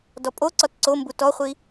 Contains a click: yes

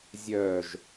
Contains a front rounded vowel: yes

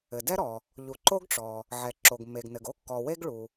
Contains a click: yes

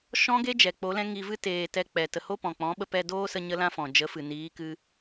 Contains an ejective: no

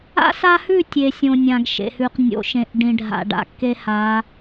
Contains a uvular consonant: yes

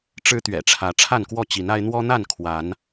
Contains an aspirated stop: yes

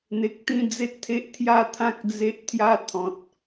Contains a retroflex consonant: no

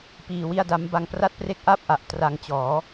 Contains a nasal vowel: no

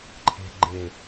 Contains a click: yes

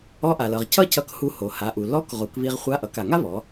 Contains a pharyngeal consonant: no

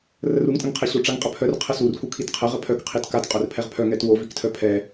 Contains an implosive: no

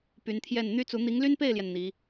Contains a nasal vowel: no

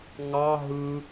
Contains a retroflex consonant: no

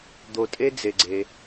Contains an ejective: yes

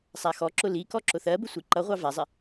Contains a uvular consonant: yes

